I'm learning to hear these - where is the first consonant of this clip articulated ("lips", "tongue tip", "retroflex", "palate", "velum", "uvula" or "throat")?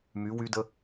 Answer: lips